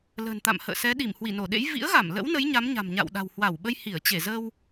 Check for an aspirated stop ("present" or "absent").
absent